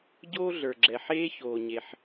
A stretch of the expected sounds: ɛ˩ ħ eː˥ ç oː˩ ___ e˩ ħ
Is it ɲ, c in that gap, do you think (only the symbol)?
ɲ